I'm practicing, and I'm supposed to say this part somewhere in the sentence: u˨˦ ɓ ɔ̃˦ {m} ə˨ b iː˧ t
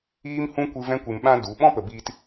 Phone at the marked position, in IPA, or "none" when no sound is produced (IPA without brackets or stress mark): p